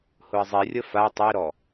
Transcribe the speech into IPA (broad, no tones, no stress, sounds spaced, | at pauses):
h ʊ ə̯ zˤ i rʲ ə f a tˤ i ɾ ɔ